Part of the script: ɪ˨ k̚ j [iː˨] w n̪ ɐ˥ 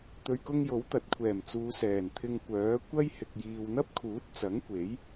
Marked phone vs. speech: correct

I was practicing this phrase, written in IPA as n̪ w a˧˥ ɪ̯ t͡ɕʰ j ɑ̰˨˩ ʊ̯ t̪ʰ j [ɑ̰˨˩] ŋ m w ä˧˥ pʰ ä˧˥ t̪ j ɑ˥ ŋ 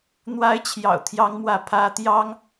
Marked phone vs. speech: incorrect: ɑ˧˥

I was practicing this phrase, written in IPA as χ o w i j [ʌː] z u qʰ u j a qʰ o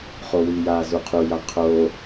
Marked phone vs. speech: incorrect: aː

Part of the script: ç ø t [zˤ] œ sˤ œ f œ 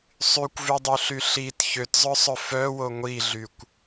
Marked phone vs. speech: correct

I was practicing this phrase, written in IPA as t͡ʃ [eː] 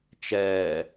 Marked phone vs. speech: incorrect: ɛː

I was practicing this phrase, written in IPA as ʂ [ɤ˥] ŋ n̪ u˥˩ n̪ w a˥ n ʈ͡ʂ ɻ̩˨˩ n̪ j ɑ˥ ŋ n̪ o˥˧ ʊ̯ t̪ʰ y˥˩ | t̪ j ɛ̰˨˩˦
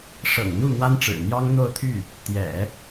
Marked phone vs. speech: incorrect: ɤ̰˨˩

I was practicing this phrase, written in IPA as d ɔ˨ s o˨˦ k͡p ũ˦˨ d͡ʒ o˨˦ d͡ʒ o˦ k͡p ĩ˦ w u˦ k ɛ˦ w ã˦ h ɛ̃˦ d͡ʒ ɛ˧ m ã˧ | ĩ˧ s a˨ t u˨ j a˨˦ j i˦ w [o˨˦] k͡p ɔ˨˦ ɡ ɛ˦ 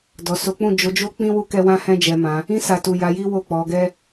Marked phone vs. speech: incorrect: o˦˨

